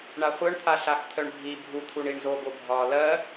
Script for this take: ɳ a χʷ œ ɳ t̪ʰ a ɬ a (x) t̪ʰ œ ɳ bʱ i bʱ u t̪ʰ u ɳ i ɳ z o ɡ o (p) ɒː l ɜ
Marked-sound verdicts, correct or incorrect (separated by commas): correct, incorrect